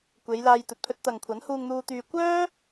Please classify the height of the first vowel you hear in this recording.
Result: mid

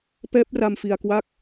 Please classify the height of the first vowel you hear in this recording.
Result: mid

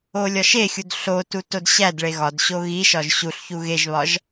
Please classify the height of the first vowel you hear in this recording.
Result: mid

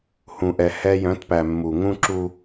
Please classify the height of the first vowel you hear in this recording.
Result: high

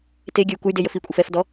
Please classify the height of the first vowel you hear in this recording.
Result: mid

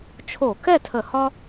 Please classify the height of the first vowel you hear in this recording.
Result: mid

